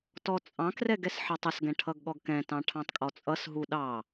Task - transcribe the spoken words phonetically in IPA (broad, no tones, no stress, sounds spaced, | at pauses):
t ɔ t͡sʼ ɑ̃ k r ɛ ɡ ɛ s ħ ɑ tˤ ʌ s ɡ ɛ̃ ʈʰ ʌ ɡ ɠ ɔ ɡ k ɛ̃ t ɑ̃ ʈʰ ɑ̃ tˤ kʼ ɔ t͡sʼ ʌ s ɦ u ɗ ɑ